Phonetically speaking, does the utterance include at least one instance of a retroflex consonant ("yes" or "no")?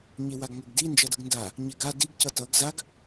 no